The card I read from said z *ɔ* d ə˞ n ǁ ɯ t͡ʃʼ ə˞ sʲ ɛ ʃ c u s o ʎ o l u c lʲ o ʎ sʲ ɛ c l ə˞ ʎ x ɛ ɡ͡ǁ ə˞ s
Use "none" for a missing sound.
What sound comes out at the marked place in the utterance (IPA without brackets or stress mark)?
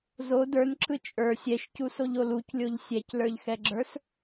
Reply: o